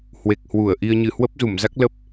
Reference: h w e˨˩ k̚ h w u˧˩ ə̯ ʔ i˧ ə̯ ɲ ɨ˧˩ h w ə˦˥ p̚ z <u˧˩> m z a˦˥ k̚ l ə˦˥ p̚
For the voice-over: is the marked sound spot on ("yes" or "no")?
yes